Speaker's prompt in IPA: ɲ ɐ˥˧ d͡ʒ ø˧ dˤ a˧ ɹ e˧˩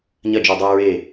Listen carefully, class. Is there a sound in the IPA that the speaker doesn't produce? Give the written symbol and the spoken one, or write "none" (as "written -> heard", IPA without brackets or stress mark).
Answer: none